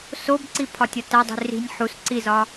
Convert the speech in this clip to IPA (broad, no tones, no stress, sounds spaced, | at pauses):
s o b ǀ i pʰ ɒ tʲ ɒ t æ dˤ i̤ r i̤ nʲ ħ u s ǀ i z ɒ